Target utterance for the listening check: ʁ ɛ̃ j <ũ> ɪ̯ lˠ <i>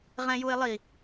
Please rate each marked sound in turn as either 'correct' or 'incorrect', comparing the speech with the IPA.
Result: incorrect: u, correct

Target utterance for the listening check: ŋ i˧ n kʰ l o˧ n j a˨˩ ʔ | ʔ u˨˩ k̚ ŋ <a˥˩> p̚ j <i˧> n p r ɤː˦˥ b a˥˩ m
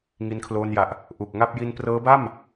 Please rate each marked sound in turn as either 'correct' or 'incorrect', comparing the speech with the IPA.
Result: correct, correct

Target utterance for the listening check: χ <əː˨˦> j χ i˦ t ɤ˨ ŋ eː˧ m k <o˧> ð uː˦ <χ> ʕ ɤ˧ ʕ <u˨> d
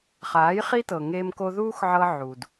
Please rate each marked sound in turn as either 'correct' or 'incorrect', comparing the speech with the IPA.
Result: incorrect: aː˨˦, correct, incorrect: x, correct

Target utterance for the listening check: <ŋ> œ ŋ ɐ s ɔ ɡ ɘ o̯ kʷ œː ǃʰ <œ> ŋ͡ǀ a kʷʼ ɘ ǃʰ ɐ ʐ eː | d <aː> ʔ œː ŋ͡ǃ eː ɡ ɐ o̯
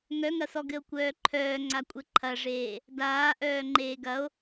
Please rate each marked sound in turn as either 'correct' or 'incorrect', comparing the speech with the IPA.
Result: correct, incorrect: œː, correct

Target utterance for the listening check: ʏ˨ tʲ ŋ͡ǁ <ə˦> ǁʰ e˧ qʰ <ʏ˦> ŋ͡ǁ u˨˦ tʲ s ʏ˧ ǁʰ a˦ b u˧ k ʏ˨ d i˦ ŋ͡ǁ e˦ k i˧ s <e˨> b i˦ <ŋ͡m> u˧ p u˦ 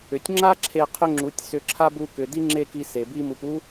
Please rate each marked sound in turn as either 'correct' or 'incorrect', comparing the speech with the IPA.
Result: incorrect: a˦, correct, correct, incorrect: m

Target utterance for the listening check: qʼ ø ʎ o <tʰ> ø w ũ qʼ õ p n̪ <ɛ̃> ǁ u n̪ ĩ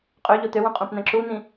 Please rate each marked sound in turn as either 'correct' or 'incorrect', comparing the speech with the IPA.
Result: incorrect: t̪, correct

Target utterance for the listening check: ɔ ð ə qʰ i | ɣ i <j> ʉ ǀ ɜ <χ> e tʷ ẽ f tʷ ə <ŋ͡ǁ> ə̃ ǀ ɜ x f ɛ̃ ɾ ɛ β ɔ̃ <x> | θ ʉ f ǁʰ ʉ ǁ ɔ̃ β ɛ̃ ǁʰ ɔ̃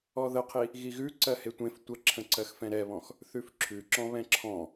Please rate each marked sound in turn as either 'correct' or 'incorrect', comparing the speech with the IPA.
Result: incorrect: ɣ, incorrect: h, incorrect: ǁʰ, correct

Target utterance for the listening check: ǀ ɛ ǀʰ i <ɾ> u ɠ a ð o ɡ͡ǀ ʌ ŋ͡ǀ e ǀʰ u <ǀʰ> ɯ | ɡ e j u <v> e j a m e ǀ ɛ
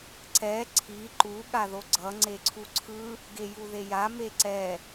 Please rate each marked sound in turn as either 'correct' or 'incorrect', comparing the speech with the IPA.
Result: incorrect: ǃ, correct, incorrect: ð

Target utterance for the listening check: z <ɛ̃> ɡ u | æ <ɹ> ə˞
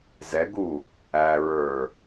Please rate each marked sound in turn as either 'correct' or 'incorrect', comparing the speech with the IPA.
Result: incorrect: ɛ, correct

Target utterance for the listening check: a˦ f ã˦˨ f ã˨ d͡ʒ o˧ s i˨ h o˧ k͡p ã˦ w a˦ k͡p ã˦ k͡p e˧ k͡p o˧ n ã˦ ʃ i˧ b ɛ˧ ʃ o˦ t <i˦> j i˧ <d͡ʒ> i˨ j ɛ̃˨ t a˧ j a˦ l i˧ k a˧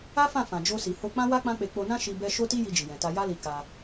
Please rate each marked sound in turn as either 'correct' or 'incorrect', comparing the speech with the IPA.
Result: correct, correct

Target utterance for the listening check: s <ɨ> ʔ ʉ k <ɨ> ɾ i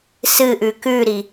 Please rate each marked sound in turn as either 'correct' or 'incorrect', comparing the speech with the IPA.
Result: correct, incorrect: ʉ

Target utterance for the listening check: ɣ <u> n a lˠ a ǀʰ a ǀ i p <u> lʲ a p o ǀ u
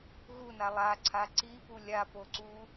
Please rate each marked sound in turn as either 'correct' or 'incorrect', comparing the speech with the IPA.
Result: correct, correct

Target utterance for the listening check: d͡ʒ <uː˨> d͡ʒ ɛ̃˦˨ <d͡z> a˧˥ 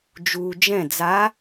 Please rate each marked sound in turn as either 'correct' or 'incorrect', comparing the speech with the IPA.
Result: correct, correct

